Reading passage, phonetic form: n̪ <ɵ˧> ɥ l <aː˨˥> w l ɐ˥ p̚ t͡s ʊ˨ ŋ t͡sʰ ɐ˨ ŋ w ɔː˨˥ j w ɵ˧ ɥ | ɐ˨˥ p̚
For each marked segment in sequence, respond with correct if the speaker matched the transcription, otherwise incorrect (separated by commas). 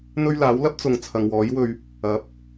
correct, correct